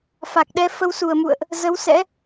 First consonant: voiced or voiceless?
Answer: voiceless